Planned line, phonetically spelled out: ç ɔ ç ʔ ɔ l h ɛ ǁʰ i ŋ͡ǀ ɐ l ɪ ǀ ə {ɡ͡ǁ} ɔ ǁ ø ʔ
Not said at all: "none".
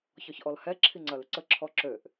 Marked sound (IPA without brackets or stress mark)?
ǁʰ